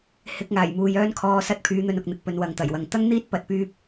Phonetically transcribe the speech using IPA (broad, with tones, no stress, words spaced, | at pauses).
hɪ˧k̚ ŋaː˨˩jmuː˨jœː˥n kʰɔː˧sɐ˥t̚pʰyː˧n̪ɵ˧n ʊ˨k̚n̪ɪ˨k̚ pɵ˨˧nwɐ˨ŋt̪ɐ˨˩jwɐ˨ŋ t̪ɐ˥ŋn̪iː˥t̚ pɐ˧t̚pyː˥p̚